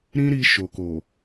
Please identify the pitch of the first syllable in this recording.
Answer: high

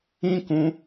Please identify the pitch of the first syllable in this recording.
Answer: high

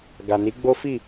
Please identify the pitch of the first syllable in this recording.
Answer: low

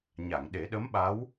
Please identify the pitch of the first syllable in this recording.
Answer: low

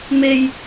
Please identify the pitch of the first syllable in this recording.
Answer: high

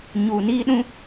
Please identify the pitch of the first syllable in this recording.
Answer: low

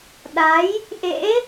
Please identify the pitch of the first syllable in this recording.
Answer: rising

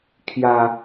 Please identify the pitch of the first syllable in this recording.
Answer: low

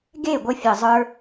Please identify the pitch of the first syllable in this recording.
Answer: falling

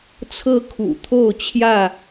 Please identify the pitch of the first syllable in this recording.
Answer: high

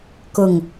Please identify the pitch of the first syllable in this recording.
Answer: low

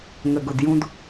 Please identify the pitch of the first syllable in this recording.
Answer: low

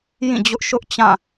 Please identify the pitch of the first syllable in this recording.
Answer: falling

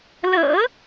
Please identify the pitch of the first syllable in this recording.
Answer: low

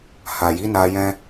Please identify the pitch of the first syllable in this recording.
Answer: low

